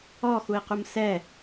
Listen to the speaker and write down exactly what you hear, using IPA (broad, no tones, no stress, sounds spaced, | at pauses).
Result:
ɔ x u i̯ q u m s ɛ